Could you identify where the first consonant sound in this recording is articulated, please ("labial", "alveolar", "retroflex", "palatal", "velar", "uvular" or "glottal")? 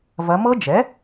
labial